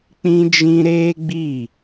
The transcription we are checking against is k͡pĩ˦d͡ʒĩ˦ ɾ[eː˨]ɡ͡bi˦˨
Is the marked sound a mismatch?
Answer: yes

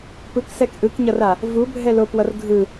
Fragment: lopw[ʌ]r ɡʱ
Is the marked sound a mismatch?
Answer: no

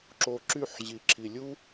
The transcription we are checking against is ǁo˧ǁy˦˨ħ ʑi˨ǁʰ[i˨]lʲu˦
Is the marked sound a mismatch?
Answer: no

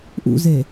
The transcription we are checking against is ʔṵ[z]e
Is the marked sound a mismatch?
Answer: no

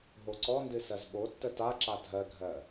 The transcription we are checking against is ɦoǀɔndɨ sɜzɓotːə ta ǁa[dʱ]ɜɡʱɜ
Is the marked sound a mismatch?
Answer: no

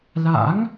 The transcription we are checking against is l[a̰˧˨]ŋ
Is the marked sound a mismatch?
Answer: yes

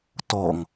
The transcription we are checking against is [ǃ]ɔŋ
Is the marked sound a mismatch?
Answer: yes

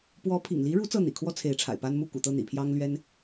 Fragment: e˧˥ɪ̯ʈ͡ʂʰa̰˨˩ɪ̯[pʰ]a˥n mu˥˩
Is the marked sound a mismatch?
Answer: yes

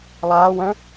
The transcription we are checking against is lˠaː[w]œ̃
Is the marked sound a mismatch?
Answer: no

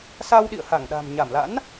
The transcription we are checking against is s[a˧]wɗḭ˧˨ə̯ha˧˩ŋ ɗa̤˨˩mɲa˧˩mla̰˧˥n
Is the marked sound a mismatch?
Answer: no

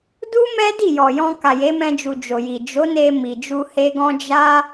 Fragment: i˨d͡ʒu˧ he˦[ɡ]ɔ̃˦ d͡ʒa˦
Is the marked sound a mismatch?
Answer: no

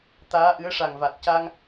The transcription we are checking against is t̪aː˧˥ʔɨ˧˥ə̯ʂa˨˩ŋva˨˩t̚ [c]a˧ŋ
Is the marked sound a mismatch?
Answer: no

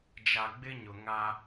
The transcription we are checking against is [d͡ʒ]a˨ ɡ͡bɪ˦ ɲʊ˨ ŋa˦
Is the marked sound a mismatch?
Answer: no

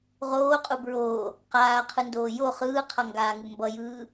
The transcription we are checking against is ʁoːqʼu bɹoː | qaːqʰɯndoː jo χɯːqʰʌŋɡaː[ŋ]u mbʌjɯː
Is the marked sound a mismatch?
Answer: no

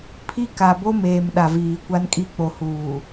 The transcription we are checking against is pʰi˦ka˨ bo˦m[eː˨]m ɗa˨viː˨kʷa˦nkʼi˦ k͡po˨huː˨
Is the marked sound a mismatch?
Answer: no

